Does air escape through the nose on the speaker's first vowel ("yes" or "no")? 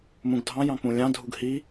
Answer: yes